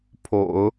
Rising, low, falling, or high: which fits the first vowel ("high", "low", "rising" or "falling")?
low